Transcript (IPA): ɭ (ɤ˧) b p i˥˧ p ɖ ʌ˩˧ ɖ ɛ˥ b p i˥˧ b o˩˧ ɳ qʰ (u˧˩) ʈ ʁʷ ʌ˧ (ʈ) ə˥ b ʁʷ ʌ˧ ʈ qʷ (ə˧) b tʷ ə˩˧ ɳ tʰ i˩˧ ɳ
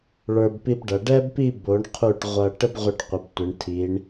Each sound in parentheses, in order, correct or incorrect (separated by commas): incorrect, correct, correct, incorrect